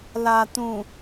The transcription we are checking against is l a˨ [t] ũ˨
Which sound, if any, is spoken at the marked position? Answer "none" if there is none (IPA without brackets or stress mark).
t